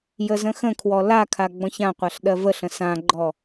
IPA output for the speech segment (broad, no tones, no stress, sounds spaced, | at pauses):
j ə z ə̃ x ə̃ kʰ w ɔ l a kʰ a ɡ͡b ɔ̃ ç ã qʷ a ɬ ɗ ɜ v ə ɬ ə̃ s ã ɡ͡ǃ ɔ